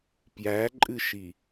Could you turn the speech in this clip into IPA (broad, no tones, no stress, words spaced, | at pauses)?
pjæǃʼɨʃi